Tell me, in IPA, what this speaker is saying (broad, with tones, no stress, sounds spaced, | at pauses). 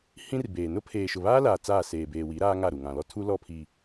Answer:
h ĩ˦ r b eː˨ n ʊ˦ pʰ eː˨ ʃ ʊ˨ β aː˦ l aː˨ t͡s aː˦˨ s eː˨ b eː˨ w i˨˦ ɾ aː˦ ŋ a˦˨ ɾ u˨ ŋ ã˨ l ɔ˦ tʰ u˦ l ɔ˦˨ pʰ iː˨